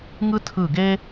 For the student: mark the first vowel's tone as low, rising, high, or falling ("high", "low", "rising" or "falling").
high